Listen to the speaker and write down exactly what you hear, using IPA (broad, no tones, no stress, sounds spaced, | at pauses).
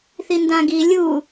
θ i n d ã ɡ i lʲ u